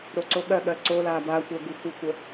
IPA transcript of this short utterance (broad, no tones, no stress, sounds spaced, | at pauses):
ɾ o ǀ o ɠ ɜ ɠ ɜ ǀ o l a b a kʷ ɜ ɡ u xʷ ə kʷ ə